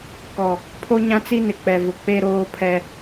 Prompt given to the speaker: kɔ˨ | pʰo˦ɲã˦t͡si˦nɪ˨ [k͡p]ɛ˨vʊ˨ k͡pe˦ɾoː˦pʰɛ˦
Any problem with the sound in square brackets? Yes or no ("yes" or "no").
no